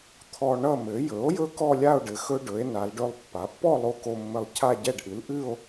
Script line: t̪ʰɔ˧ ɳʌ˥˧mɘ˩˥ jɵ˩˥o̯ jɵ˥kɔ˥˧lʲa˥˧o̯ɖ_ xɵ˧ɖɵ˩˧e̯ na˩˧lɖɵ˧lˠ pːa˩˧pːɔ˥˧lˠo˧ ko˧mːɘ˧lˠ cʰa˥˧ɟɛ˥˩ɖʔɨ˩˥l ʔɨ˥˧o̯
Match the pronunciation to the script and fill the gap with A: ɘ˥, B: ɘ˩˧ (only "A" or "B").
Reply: B